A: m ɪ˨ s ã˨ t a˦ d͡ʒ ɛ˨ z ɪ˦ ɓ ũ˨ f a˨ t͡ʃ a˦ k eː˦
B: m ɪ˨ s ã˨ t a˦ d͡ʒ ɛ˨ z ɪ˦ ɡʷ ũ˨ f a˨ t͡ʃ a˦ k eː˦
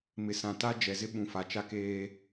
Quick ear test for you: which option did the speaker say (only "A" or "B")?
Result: A